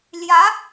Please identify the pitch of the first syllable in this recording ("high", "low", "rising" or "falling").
rising